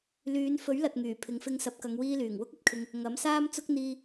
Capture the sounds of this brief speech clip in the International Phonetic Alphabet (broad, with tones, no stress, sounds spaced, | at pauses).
l yː˨˧ n f ɵ˨˥ ɥ l ɐ˨ t̚ ŋ yː˨˩ pʰ ɪ˨˧ ŋ f ɪ˧ ŋ s ɐ˨˥ p̚ k ɐ˨˧ ŋ w iː˧ l yː˨˩ ŋ w ʊ˥ k̚ ɐ˥ p̚ kʰ ɪ˧ ŋ | ŋ ɐ˨˥ m s aː˥ m t͡s ʊ˥ k̚ n̪ iː˧